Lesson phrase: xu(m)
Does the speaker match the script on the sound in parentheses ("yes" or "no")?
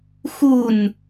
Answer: no